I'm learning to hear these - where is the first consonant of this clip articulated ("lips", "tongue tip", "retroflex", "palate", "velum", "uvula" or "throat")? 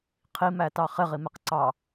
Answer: uvula